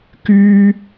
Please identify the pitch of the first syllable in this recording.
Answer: high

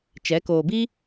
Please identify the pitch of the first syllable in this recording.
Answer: rising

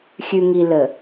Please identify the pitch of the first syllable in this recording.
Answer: low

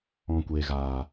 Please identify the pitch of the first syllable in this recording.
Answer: low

